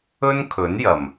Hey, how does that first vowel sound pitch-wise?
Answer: high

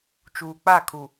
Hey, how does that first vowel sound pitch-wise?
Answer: low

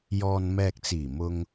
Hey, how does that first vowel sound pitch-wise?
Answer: low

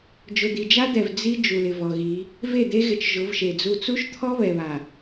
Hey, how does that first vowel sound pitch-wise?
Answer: low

